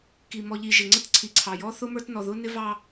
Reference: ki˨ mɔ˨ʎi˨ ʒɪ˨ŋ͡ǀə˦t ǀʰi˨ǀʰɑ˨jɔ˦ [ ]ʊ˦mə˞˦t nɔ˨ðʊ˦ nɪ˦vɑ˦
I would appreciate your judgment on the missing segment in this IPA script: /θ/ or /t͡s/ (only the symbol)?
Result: θ